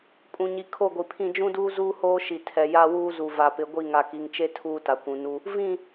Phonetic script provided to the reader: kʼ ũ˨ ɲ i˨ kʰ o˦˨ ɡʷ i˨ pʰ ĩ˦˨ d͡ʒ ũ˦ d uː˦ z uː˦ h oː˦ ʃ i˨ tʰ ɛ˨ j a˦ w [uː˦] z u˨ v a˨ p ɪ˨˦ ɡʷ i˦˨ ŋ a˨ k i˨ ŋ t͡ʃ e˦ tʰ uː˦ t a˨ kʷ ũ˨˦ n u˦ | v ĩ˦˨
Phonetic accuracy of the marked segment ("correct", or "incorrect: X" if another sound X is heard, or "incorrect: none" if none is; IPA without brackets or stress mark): correct